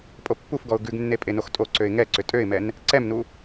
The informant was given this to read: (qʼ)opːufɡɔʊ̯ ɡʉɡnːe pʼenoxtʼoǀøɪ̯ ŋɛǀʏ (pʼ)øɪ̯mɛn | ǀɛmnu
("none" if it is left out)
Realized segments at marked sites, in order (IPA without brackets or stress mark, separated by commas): pʼ, tʼ